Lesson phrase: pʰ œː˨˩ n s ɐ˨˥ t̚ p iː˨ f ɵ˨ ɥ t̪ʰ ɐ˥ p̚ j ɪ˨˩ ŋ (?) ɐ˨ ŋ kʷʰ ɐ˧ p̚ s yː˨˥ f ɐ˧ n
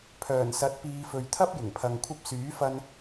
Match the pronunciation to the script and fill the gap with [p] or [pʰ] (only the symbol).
pʰ